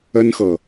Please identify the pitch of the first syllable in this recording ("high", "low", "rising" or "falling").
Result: high